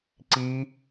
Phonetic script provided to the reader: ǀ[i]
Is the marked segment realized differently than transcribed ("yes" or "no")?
no